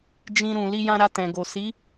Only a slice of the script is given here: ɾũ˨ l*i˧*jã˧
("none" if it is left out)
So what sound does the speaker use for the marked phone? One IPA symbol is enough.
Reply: i˧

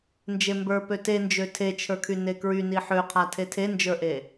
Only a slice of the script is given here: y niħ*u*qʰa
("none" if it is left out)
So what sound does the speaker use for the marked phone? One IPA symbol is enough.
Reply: ø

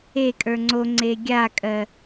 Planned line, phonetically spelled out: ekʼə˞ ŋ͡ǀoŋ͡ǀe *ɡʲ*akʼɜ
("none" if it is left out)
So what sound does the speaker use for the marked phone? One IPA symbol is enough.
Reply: ɡʲ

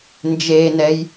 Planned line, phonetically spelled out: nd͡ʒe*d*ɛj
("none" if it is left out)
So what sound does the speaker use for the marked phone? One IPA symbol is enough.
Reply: n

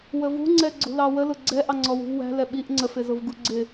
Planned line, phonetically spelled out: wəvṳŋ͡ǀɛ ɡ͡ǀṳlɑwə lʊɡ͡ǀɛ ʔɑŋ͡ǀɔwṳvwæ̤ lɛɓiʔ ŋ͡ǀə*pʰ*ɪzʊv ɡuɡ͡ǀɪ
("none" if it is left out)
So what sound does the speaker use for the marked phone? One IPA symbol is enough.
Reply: f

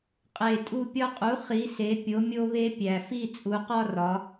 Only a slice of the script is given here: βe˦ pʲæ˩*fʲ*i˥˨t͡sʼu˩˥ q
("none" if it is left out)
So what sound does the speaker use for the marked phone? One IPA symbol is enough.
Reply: f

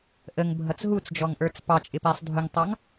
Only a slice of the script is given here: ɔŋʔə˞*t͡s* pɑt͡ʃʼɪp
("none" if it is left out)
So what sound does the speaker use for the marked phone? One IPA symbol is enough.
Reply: t͡s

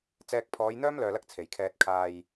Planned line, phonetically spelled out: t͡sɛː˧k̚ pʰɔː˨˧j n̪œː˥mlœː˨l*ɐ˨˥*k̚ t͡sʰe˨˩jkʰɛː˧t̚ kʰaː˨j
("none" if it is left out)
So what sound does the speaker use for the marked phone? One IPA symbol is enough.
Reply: ɐ˧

